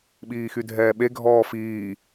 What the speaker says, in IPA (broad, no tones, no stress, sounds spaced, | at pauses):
ɓ iː x y dʱ ɛː ɓ e ɡʱ ɔː f iː